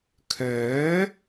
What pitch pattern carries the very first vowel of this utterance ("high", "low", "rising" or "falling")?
rising